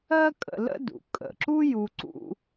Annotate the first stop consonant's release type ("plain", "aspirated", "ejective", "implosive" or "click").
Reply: ejective